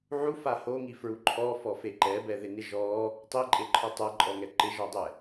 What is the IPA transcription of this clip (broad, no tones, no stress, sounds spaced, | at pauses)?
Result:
ʕ u f a h o ŋ i f ɹ u ǃʰ ɔ f ɔ f e ǃ ɛ b ɛ ð ɪ n ɪ ʒ ɔ | tˤ i ǃʼ e ǃʰ ɔ tˤ ɛ ǃʼ ɔ ŋ ɛ ǃ ɪ ʒ ɔ dˤ ɛ